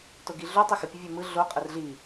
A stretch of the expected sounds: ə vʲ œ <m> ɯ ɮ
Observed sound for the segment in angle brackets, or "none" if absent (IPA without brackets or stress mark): m